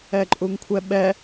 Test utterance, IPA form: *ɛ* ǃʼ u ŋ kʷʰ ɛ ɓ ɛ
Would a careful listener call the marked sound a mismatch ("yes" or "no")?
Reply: no